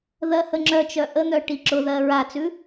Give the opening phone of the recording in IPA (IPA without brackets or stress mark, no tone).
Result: ð